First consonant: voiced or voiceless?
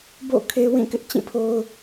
voiced